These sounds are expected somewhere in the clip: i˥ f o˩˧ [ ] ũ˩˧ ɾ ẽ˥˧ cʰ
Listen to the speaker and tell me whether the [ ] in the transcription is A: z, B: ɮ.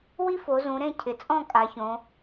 A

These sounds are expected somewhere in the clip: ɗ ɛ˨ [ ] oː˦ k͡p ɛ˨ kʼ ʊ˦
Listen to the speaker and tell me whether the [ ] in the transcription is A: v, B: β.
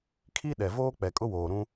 A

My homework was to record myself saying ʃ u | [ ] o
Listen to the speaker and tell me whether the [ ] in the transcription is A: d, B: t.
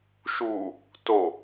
B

